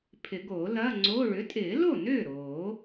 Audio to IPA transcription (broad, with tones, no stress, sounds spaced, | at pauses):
pʰ ɪ˨˩˦ ɡ oː˨˩˦ l ɐː˧˥˧ ŋ͡ǀ oː˧˥˧ ɭ ʏ˩˥ tʼ ɪː˨˩˦ l o˥˩ n ʏː˥˩ ɾ oː˨˩˦